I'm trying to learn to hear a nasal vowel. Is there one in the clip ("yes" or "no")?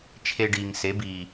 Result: no